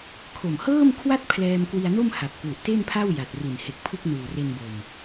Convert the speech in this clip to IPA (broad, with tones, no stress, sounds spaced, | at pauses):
kʰ o˨˩ m h ɤː˥˩ m kʰ w a˥˩ t̚ pʰ l ɛː˧ m k w i˧ a̯ n o˥˩ m h a˨˩ p̚ k w u˨˩ ʔ t e˥˩ n pʰ a˥˩ w j a˨˩ t̚ r i˨˩ n h e˨˩ k̚ pʰ ɯ˦˥ k̚ n uː˨˩ r e˧ n b o˨˩ m